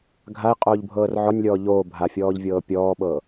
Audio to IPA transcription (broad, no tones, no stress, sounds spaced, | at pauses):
ɡʱ a ɪ̯ qʼ oː ʎ bʱ ɤː r ʕ ɔ nʲ lʲ ɔː ʎ oː bʱ a fʲ ɔː ʎ vʲ ɤː pʲ ɔː ɓ ɤː